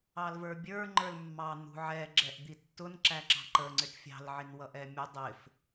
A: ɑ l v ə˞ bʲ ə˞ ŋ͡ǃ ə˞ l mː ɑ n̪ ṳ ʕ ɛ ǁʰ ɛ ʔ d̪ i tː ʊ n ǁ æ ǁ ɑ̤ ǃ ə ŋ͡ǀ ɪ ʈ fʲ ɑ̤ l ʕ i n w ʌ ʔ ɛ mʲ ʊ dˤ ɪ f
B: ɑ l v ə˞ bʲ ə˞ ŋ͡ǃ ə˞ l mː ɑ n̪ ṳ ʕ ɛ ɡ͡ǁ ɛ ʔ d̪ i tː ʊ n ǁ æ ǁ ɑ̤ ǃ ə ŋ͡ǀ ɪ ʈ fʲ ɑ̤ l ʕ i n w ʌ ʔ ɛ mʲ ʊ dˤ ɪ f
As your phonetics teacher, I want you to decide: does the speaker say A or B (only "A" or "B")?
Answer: B